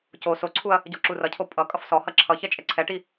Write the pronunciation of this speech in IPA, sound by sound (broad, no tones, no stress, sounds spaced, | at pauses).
c o s o ǀʰ u ɐ̯ | ɟ ɔ ǁ u r ʌ cʰ o pʼ ʌ kʼ ʌ f s ɔ h ʌ ǁʰ ʌ ç ɛ t͡ʃʼ ɛ ǀʰ ɛ ʈ i